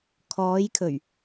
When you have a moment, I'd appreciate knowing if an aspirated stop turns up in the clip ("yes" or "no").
yes